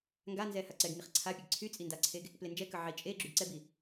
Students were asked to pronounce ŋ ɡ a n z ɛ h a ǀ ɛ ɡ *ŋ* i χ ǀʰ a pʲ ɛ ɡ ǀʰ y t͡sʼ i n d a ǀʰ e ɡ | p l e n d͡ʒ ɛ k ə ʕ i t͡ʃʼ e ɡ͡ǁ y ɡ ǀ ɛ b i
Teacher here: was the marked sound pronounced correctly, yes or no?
yes